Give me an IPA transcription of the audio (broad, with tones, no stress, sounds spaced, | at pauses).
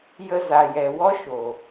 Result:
j ə˧ z a˨ j ɛ˨ w ɔ˦ ʃ o˨